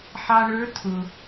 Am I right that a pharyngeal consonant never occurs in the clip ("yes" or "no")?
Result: no